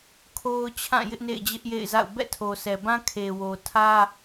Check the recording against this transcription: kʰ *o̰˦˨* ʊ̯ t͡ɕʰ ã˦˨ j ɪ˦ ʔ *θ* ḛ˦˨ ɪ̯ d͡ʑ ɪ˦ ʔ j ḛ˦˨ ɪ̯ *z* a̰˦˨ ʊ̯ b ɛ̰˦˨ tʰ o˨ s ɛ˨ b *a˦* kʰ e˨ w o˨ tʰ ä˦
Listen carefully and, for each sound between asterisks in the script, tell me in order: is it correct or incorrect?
incorrect, incorrect, correct, incorrect

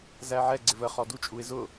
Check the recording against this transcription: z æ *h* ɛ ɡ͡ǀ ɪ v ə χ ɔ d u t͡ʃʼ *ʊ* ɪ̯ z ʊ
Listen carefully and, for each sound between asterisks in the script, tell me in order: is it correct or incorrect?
incorrect, incorrect

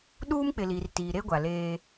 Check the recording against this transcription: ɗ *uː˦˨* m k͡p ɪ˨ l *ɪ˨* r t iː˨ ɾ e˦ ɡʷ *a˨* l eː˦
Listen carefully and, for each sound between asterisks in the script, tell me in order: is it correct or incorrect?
incorrect, incorrect, correct

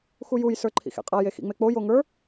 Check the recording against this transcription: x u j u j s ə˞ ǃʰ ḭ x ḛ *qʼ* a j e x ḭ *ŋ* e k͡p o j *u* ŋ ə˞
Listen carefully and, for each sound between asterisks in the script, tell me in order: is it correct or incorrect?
correct, incorrect, incorrect

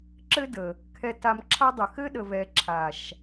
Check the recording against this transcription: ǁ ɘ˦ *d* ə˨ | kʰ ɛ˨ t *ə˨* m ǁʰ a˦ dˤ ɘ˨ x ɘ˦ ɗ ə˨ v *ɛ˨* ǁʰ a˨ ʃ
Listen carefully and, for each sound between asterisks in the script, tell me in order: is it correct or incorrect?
correct, incorrect, correct

